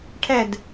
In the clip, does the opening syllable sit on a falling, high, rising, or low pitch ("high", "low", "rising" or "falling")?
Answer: falling